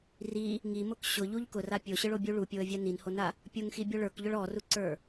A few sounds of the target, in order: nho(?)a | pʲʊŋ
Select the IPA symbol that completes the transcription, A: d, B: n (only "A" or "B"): B